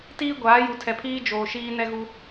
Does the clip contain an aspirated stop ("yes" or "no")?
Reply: yes